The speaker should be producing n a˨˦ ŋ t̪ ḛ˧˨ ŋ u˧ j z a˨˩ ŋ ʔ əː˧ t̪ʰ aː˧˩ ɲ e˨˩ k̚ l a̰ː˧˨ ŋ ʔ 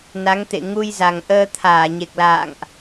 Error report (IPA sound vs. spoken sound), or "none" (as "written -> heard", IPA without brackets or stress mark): none